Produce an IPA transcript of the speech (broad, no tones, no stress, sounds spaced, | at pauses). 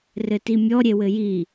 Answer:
r ɘ t i mʲ ɔ ɾʲ e w ɘ j i